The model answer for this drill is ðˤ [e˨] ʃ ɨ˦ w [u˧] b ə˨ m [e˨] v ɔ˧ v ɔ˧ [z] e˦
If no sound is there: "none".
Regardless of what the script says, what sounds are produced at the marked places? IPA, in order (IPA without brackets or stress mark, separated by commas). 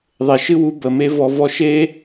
e˨, u˧, e˦, ʃ